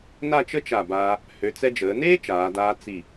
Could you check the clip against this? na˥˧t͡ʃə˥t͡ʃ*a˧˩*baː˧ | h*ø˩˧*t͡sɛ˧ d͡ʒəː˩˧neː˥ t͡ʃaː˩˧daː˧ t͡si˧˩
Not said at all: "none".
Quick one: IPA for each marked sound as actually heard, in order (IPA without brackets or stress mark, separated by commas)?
a˧˩, ø˩˧